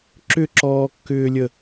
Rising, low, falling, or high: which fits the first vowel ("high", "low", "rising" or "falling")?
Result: falling